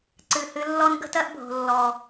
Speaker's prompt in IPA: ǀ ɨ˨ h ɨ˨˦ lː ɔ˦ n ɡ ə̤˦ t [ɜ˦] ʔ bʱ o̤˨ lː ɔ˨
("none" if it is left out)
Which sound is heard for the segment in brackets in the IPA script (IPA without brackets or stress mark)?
ɜ˦